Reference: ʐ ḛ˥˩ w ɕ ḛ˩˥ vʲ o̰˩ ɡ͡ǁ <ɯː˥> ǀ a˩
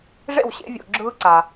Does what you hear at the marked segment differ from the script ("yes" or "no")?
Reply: no